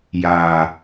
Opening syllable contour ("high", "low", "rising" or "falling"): low